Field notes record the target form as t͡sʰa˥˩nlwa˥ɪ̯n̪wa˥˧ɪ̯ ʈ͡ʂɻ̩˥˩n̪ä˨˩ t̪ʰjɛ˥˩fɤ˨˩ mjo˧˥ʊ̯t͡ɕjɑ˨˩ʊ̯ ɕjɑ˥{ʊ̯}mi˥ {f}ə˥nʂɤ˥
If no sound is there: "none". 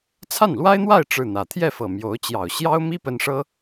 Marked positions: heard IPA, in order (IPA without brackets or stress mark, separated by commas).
ʊ̯, p